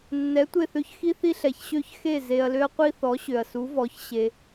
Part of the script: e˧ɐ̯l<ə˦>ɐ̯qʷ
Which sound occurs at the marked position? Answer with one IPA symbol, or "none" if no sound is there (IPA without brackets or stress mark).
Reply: ø˦